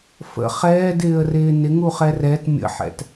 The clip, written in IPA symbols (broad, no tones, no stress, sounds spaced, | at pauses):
f ə̰ χ ɛː d ɪː ə̯ r ɪː n ɪ ŋ u χ ɛ r ɛ t mʲ ə̰ ħ ɛ̰ t